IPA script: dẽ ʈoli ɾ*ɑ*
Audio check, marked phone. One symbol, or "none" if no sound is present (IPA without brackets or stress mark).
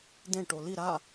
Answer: a